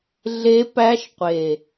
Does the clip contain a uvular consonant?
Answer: yes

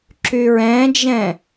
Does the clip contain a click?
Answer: yes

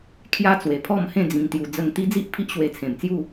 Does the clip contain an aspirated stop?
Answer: yes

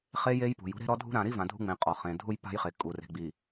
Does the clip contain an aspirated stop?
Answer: no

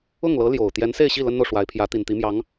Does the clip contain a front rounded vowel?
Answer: no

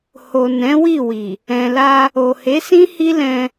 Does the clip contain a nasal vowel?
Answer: yes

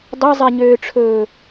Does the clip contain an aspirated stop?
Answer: yes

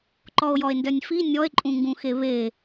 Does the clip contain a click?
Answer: yes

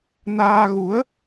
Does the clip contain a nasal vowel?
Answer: no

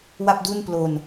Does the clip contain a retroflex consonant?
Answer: no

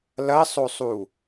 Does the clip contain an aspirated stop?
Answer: no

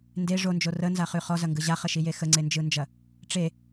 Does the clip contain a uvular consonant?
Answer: yes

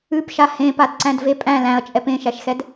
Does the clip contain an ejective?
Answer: yes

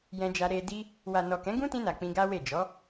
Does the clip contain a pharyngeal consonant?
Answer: no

